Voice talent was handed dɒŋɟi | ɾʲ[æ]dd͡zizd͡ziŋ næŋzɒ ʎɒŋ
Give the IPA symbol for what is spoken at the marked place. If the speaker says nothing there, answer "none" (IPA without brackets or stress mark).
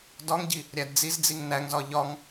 æ